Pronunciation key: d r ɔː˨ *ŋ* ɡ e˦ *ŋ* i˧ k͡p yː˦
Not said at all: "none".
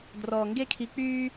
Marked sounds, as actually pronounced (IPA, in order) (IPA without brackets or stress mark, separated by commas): ŋ, kʰ